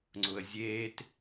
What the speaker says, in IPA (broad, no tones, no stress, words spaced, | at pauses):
ŋ͡ǀʊə̯zʲeːt